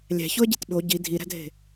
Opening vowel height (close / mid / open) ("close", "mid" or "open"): open